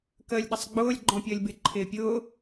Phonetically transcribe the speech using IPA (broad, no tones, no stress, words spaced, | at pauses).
kəːlʲɗəsˤɡ͡bʊːlʲ ɡ͡ǃɔ̃pʲəːlʲbɪ ǃʰɪːpʲʊː